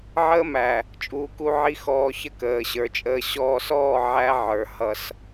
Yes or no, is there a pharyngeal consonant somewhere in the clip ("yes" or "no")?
yes